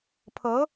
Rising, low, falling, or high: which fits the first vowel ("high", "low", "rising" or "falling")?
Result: rising